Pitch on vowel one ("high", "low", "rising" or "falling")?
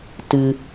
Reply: low